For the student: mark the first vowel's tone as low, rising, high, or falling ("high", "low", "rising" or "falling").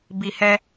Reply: low